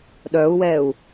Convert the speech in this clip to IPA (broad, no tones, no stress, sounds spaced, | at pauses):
ɗ œ u̯ w ɛ u̯